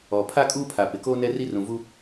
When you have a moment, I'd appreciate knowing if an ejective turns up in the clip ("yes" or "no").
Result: yes